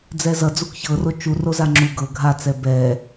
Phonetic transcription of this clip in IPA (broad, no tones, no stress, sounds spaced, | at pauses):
d͡z ɛ z ʌ d͡z u k ç ɤ r o t͡ʃ u r o z a ŋ͡ǁ u ɡ ɤ ɡʱ a t͡s ɛ b ɛ